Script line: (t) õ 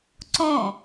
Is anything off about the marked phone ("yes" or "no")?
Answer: yes